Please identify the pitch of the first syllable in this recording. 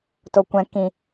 low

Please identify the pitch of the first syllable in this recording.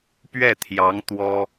falling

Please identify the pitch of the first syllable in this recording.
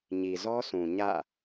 low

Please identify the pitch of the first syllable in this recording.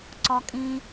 low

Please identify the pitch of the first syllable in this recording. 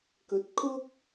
rising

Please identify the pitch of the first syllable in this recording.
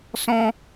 high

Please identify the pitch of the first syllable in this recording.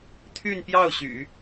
falling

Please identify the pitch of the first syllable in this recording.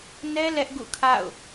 high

